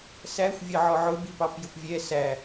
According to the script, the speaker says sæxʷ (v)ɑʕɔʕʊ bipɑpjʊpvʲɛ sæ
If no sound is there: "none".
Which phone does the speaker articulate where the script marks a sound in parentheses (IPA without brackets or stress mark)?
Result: vʲ